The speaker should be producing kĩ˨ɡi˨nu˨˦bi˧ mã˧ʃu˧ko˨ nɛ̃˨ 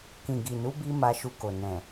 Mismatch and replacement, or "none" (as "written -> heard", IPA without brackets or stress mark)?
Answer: ã˧ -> a˧